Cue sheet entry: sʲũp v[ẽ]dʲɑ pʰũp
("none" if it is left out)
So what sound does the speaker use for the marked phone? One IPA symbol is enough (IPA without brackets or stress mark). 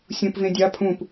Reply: ẽ